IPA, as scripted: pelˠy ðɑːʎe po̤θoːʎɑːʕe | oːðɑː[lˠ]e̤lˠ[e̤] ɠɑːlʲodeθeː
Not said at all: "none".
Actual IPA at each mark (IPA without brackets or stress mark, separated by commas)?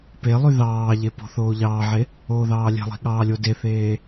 lʲ, i̤